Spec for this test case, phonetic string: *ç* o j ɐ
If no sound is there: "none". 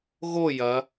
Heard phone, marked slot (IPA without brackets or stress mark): ɣ